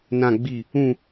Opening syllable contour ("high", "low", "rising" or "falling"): low